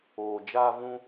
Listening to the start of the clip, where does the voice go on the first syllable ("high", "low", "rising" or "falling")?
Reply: low